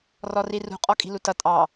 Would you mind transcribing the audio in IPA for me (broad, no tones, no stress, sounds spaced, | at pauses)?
r ɔ r i r ṳ qʼ ɔ kʼ i̤ l u t ʌ tʼ ɑ